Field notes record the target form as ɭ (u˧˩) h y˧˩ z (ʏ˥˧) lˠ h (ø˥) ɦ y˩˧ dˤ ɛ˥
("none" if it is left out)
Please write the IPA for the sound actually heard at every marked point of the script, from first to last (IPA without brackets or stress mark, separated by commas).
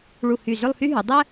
u˧˩, ʏ˥˧, y˥